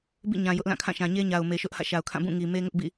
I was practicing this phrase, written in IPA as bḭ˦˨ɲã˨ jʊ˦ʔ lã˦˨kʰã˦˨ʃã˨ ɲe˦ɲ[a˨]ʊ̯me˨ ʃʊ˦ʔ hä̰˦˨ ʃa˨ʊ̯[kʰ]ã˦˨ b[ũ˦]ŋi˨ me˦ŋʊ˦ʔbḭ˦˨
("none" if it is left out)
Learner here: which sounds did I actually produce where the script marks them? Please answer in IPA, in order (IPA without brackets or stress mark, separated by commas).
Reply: a˨, kʰ, ũ˦˨